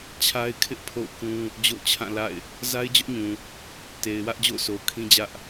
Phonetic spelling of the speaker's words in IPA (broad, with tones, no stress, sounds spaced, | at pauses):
t͡ɕʰ a˦ ɪ̯ kʰ ɪ˦ ʔ pʰ o̰˦˨ ʊ̯ k ũ˦ | d͡ʑ o̰˦˨ ʊ̯ t͡ɕʰ ã˦˨ l a̰˦˨ ɪ̯ | z a˦ ɪ̯ d͡ʑ ʊ˦ ʔ ɲ ũ˨ | t e˨ ɪ̯ w ä˦ ʔ d͡ʑ o̰˦˨ ʊ̯ sʰ o˨ ʊ̯ kʰ ĩ˦ d͡ʑ ä˦ ʔ